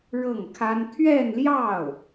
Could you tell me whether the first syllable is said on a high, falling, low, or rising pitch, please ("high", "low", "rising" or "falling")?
falling